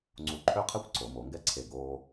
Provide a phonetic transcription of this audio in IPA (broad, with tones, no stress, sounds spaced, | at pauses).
ŋ͡ǀ u˧˩ ǃʰ ø˥˧ qʰ ɛ˥ kʷ ǀ o˩˧ m o˩˧ ŋ ɡ ɛ˥ ǀʰ e˧˩ ɡ oː˧